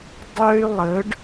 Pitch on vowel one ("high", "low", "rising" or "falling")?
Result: high